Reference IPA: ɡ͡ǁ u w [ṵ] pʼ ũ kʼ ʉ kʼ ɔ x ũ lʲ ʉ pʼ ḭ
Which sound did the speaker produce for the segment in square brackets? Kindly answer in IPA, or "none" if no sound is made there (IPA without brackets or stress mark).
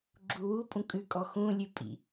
u